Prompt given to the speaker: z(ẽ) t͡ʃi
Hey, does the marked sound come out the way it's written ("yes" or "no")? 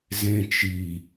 yes